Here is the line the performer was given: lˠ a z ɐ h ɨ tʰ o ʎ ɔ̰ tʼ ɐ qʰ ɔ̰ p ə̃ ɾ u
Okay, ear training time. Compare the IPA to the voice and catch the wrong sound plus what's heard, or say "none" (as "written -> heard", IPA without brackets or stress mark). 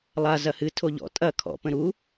qʰ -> kʰ